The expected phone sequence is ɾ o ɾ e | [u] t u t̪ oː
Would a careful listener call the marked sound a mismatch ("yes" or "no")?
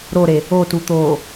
yes